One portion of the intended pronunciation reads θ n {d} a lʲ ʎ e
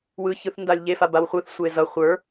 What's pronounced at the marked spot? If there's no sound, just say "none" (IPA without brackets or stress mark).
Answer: d